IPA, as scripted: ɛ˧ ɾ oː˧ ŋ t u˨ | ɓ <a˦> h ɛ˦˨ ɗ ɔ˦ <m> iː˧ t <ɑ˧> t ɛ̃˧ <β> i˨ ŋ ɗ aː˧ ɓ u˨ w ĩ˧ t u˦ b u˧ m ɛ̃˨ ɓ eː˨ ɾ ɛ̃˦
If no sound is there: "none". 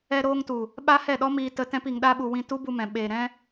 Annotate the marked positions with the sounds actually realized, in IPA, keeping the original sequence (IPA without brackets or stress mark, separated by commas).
a˦, m, ə˧, p